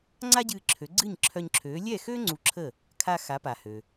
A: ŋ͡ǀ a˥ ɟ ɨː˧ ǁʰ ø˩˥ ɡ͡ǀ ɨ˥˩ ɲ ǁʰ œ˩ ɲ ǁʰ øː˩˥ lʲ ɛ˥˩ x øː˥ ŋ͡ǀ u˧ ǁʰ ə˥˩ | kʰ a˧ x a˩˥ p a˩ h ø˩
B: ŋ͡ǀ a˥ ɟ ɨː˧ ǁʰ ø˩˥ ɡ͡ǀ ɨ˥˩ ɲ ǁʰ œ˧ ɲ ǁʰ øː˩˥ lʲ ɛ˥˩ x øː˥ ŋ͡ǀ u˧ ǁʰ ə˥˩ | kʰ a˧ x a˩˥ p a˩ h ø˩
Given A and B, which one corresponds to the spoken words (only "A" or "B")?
B